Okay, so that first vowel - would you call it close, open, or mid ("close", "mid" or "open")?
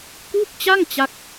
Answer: close